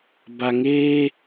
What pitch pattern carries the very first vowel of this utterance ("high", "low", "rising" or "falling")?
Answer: low